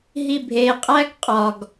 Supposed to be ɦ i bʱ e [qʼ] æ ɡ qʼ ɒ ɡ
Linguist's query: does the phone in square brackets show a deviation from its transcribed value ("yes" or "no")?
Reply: no